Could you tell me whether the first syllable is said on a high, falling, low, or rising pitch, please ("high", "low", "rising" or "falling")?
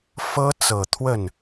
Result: high